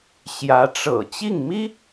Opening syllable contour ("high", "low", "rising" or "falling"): rising